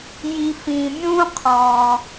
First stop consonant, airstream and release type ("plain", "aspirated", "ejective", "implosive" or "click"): aspirated